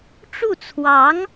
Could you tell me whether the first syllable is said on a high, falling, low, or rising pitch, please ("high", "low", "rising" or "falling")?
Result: falling